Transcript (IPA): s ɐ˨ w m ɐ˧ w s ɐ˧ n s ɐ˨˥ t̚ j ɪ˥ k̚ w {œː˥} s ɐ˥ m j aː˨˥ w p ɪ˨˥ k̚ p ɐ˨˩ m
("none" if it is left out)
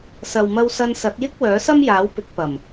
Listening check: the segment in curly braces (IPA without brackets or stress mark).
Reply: œː˨˥